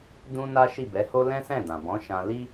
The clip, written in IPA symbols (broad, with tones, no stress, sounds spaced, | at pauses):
d ũ˦ n a˦ ʃ i˦˨ b ɛ˨˦ h o˦ l ɛ̃˦ s ɛ̃˦˨ d ã˨ b ɔ̃˨˦ ʃ ã˧ l i˦